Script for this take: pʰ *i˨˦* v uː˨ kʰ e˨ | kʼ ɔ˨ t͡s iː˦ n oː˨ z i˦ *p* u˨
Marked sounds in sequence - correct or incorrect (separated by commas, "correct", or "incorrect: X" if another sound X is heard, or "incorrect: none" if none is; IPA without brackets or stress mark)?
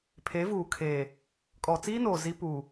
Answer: incorrect: e˨˦, correct